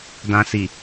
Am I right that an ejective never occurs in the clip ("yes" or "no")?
yes